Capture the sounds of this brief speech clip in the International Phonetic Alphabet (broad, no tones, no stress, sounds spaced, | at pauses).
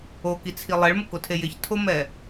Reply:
o k i t͡sʰ i lˠ ɛ ɭ m ʊ k o tʰ e j ɪ ç tʰ o m ɛ